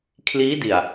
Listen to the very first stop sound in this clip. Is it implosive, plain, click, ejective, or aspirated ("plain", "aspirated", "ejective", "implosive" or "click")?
aspirated